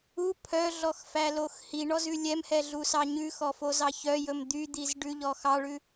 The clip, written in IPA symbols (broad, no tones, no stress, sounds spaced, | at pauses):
u pʰ œ ɮ ɔ x f æ l o x h i ɳ ɔ z ʉ lʲ ɛ m h ɛ ɮ u s ɑ ɲ ʉ x ɔ f o z ɑ ç œ j ɵ m d̪ y d̪ i z ɖ ʉ ʎ ɔ x ɑ ɭ ʉ